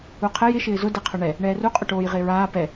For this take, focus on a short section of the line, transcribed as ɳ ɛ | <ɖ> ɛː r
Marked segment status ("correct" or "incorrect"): incorrect